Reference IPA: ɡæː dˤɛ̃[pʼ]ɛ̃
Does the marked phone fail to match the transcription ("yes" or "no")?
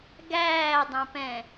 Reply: yes